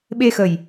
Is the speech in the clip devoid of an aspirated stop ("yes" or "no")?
yes